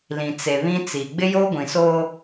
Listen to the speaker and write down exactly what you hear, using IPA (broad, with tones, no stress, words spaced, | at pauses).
lĩ˨t͡se˨βĩ˦ t͡si˨ ɡ͡bɪ˦joː˦ɡʷĩ˨soː˦